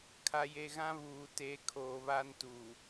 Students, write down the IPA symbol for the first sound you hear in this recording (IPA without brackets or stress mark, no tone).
kʰ